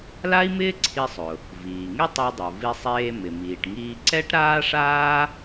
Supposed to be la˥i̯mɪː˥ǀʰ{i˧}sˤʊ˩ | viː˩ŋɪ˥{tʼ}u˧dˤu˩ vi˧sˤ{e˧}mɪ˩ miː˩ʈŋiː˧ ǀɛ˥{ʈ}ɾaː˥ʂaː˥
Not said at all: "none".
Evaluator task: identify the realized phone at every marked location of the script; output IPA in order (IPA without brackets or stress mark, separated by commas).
i˧, tˤ, eː˧, ʈ